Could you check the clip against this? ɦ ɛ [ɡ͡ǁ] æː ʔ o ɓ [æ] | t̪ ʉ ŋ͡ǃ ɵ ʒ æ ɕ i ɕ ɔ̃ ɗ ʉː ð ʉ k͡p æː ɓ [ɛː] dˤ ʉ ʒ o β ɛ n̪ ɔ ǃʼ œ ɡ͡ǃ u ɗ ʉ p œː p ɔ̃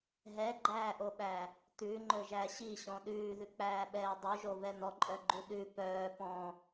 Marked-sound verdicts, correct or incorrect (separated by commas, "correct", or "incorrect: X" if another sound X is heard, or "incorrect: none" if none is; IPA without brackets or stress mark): incorrect: ɡ͡ǃ, correct, correct